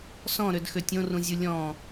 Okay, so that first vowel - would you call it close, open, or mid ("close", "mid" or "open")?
mid